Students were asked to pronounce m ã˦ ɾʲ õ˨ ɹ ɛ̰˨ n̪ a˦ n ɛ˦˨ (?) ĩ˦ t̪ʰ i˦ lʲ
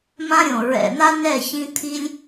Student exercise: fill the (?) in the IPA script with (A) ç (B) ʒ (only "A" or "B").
A